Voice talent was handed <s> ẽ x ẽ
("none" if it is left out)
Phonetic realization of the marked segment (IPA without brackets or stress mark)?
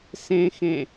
s